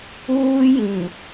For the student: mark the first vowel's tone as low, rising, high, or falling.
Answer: high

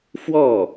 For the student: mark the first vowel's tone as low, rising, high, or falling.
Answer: falling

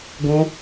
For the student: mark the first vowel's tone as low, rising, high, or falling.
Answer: high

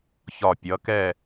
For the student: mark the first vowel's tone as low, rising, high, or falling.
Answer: low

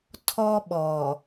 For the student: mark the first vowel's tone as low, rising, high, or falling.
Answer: high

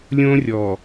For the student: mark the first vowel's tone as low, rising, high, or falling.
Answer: high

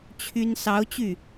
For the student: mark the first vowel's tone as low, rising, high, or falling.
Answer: high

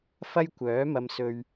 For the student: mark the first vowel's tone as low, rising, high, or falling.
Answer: high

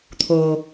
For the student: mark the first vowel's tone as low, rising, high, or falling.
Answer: low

